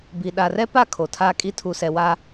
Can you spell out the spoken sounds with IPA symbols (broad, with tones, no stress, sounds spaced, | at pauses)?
b i˨ ɗ a˨ r ɛ˦ p a˦˨ kʰ o˨ tʰ aː˦ kʼ i˦ tʰ u˨ s ɛ˨ w a˦